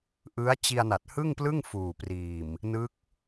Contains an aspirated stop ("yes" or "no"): no